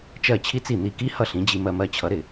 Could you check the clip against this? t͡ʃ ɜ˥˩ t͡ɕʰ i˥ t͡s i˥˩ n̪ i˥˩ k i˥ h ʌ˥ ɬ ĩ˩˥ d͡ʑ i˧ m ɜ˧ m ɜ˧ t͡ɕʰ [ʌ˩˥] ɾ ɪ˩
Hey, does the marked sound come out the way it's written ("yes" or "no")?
yes